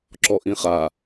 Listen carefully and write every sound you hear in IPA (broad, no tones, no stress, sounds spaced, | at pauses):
ǁ ɔ ʔ ĩ χ a